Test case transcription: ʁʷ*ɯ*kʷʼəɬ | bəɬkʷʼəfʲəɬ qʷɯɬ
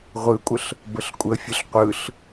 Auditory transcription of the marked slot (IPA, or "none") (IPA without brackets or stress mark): ɯ